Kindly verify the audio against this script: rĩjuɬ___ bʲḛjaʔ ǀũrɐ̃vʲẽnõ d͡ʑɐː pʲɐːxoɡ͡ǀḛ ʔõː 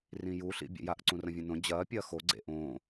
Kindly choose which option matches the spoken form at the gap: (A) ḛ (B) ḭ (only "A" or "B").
B